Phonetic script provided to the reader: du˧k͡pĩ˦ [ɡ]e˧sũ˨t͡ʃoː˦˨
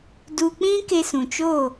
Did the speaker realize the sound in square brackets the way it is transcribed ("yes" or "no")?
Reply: no